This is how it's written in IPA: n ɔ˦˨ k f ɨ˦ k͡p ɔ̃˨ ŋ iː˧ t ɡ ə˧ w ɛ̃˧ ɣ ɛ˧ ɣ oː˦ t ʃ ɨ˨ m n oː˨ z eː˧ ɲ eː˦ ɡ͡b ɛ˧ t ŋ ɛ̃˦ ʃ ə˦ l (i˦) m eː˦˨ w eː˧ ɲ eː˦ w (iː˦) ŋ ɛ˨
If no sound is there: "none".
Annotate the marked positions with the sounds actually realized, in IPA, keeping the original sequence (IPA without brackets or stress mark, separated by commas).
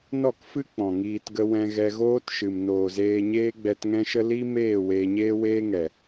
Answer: i˦, eː˦